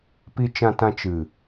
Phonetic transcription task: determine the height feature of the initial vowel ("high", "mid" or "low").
high